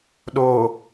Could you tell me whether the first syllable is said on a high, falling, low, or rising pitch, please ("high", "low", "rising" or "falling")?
low